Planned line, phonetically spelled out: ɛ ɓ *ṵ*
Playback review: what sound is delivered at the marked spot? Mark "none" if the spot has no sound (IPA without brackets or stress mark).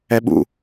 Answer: ṵ